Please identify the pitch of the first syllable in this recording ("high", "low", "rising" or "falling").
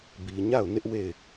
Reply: low